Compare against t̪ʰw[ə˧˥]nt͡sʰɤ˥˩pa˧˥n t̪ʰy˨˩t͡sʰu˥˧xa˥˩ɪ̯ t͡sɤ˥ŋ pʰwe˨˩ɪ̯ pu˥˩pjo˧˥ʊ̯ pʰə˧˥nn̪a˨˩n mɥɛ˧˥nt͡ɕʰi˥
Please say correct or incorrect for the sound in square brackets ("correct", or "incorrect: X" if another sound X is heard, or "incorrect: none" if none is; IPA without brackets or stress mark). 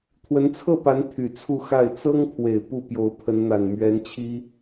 correct